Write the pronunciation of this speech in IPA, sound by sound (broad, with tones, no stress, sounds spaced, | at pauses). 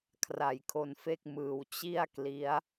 kʰ r a˨˩ j kʰ o˧ n f e˥˩ k̚ m ɯː˨˩ w t͡ɕ i˥˩ a̯ k l i˦˥ a̯